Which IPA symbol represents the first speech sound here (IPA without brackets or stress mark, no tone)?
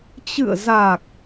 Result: t͡ɕ